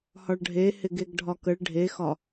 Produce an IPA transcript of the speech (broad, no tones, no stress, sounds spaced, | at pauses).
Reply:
h ɒ ɭ ɖʱ e h ɪ ɡ e ɡ ɖʱ ɒ k ə ɭ ɖʱ e x ɒ